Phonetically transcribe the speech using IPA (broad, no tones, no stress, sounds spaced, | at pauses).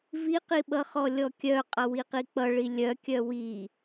v i q i ɓ ʌ χ ɔ lʲ ɔ kʲ œ qʼ ʌ w i q i k͡p ʌ ɭ i lʲ œ kʲ œ w i